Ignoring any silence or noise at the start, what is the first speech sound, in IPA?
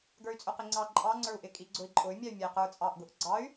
ɡ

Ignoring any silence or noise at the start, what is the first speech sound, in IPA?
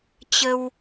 t͡ɕ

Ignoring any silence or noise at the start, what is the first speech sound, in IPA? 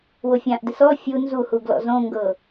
w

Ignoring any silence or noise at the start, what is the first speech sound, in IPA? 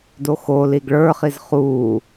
d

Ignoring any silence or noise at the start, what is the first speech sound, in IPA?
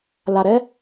l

